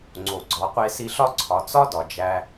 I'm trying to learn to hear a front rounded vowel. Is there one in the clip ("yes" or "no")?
no